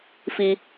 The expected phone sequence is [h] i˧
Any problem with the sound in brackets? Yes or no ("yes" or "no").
yes